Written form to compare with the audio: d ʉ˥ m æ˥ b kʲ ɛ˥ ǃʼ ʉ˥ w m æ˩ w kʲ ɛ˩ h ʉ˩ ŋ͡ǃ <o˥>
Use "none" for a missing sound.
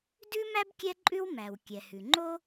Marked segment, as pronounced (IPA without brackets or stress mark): o˥